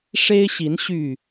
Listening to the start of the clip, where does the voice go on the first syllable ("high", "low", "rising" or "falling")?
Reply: high